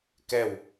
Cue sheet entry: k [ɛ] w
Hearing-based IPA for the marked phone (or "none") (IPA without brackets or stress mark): ɛ